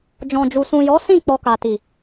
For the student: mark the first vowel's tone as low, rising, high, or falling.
low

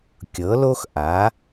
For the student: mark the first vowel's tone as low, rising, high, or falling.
rising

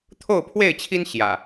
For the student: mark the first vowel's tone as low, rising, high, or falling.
falling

